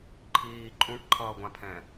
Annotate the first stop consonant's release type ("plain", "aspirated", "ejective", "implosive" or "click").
click